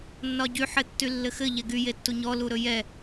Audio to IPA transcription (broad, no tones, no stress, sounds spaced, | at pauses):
nː ɒ ɟ y ħ ɘ tː y lː ɘ x ɘ ʎ ɛ ɡ y j e tː u ɲ ɔ l u ɾ ɵ j ɛ